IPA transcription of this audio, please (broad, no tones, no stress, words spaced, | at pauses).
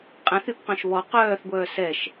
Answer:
qʼɛ̃θypqœ̃ʃ βɔ qœːθɡʷœː sɛʃ